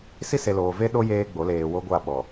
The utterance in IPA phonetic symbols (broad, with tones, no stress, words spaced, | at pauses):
si˦se˨loː˨ve˦ ɗo˦ jeː˦ɡ͡bo˨˦leː˨ wo˦ɡʷa˦˨ɓɔ˨